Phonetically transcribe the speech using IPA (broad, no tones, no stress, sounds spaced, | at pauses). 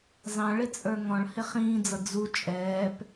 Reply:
z ɑ̃ ɭ ɪ t͡sʼ ə˞ ŋ ɔ̃ ɭ h ɪ χ ĩː d͡z ʌ d͡z u t͡ʃʼ ɛː p